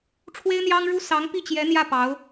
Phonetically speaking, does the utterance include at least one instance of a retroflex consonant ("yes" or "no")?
yes